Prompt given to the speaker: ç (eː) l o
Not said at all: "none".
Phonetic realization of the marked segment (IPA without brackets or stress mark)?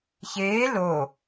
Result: eː